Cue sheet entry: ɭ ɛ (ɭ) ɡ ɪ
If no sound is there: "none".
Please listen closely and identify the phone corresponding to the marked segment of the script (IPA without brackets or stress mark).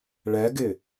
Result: none